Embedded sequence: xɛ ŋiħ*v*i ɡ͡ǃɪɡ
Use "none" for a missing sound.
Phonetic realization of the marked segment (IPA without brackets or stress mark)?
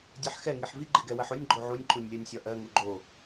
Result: v